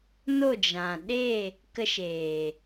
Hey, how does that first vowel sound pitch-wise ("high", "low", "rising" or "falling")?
falling